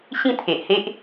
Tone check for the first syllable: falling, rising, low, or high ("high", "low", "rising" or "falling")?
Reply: falling